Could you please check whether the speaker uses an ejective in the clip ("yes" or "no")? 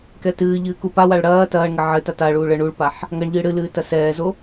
no